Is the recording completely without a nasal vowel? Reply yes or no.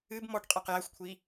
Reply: yes